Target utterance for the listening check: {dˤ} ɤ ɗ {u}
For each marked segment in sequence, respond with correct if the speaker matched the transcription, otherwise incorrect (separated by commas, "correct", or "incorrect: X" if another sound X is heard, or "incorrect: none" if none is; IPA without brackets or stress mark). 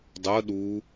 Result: correct, correct